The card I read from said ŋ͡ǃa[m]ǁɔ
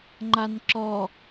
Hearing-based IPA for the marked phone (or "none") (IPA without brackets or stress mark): n